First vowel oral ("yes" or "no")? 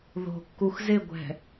yes